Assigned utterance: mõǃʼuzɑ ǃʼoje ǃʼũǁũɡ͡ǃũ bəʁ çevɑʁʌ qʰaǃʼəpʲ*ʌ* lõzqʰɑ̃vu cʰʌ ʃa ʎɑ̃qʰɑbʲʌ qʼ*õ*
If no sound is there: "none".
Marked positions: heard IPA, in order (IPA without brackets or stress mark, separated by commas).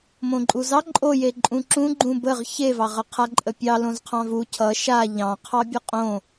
ɑ, õ